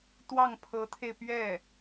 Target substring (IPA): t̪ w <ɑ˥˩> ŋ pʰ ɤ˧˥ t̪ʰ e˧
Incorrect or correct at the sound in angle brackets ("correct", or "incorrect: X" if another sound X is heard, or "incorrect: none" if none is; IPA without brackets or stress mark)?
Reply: correct